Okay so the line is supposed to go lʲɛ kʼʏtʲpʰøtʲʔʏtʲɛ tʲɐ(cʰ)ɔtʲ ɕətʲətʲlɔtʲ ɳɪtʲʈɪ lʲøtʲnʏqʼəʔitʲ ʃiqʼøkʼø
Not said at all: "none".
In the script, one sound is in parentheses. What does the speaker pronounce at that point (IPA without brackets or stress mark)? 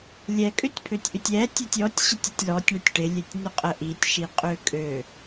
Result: tʲ